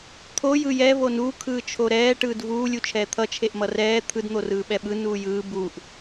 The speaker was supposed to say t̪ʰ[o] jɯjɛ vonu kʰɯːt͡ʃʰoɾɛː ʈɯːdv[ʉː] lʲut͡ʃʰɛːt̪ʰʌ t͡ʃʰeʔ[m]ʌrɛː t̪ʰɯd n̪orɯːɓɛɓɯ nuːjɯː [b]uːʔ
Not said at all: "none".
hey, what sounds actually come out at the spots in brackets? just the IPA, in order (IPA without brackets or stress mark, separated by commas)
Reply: o, uː, m, b